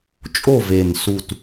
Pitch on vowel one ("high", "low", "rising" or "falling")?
falling